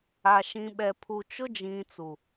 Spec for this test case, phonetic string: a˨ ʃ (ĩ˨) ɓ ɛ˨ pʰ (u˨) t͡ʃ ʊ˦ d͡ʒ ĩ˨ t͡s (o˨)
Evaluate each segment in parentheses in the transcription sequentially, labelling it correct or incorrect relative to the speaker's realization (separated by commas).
correct, correct, incorrect